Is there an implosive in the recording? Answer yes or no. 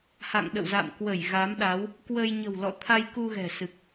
yes